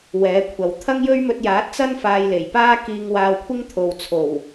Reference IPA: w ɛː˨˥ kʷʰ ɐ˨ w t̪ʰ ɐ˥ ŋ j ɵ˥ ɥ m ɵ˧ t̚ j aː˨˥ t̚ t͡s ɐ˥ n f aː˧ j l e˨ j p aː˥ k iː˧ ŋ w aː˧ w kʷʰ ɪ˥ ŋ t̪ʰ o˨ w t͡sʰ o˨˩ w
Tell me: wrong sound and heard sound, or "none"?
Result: e˨ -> e˨˩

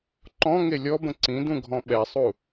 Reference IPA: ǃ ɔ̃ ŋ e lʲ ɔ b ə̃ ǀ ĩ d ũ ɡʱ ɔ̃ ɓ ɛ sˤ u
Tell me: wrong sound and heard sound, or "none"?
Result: none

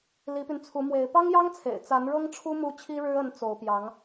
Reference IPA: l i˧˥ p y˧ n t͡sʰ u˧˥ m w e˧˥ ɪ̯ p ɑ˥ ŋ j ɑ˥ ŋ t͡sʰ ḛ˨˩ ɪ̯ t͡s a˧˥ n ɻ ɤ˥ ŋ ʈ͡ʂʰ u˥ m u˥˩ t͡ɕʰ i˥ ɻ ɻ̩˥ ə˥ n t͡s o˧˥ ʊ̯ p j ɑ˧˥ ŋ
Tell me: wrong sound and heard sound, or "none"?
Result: none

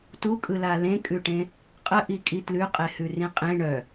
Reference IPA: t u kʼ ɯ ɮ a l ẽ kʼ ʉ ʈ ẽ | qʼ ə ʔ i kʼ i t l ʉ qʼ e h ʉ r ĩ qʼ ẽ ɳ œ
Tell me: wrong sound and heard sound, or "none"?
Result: ɮ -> l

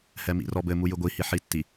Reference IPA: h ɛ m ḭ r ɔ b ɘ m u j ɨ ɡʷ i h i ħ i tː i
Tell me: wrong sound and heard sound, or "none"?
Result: none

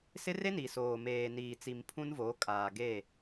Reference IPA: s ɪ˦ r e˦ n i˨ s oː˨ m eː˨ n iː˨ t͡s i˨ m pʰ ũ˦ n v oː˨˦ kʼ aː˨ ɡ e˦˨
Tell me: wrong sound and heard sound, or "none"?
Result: none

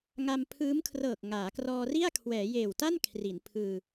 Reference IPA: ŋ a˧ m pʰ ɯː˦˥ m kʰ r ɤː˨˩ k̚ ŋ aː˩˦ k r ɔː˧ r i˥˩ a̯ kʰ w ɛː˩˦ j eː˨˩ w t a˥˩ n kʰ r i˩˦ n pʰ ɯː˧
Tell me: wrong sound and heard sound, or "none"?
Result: none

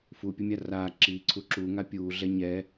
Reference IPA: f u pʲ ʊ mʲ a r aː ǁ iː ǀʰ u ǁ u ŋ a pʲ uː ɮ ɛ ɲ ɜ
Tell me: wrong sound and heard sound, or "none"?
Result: ɜ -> ɛ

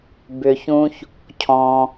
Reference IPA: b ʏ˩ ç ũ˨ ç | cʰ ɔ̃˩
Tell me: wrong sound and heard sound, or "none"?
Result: none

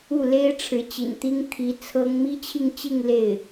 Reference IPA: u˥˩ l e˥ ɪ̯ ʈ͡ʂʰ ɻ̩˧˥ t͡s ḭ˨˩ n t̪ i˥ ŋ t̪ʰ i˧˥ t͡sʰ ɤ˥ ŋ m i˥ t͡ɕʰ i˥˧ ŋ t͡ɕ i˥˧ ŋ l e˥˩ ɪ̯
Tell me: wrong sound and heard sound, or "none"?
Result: t͡s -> t͡ɕ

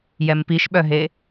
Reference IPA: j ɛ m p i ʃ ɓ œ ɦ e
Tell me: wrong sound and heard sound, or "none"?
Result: none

